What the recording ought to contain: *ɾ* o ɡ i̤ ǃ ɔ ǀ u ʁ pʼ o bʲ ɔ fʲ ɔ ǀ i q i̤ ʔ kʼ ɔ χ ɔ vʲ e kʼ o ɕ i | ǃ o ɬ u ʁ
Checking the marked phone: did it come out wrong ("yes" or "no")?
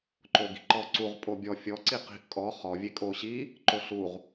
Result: yes